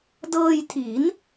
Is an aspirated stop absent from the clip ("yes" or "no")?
no